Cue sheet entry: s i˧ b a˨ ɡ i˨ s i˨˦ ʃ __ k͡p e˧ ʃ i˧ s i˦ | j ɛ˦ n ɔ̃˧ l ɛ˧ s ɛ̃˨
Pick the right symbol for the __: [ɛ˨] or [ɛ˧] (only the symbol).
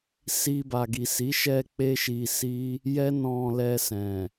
ɛ˧